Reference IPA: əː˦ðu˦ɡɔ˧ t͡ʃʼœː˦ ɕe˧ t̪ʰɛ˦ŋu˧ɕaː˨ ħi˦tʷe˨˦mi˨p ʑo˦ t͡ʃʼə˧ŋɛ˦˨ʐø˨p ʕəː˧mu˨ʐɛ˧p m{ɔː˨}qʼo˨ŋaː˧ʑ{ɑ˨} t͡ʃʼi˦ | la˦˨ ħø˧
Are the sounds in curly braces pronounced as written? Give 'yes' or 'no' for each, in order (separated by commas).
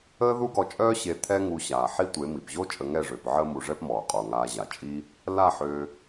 yes, no